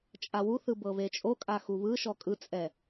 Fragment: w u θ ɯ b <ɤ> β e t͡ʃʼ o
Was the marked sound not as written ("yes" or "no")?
no